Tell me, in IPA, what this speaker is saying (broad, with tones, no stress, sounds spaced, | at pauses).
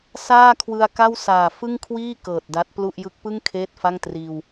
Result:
s aː˥˩ kʰ w ɯ˧ a̯ k a˥˩ w s aː˨˩ f ɯ˥˩ ŋ kʰ w iː˥˩ k ɤː˨˩ t̚ d a˦˥ t̚ p l u˥˩ ʔ j ɯ˦˥ k̚ p ɯ˥˩ ŋ kʰ eː˥˩ t̚ f a˥˩ ŋ t r iː˧ w